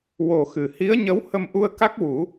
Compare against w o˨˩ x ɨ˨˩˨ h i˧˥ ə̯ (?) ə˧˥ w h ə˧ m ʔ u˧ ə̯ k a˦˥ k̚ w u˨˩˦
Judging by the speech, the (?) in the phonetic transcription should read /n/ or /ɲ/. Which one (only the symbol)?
ɲ